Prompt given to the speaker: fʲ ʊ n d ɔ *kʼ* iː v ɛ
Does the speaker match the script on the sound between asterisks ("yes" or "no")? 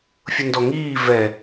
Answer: no